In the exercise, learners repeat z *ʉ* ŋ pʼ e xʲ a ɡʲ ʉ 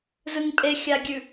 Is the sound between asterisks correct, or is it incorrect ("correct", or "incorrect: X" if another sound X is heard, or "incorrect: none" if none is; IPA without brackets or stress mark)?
incorrect: ɨ